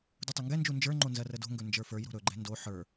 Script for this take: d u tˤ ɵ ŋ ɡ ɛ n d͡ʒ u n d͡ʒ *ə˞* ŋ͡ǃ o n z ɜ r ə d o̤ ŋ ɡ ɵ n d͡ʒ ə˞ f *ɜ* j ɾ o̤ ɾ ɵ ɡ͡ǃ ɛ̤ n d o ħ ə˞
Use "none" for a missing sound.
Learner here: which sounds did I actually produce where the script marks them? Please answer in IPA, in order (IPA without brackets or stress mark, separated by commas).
ə˞, ə˞